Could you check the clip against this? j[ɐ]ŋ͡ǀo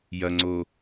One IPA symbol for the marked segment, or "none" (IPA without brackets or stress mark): ɐ